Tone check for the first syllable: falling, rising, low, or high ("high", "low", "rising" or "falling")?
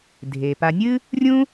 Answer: low